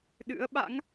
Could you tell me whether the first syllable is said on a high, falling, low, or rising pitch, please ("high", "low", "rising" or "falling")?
rising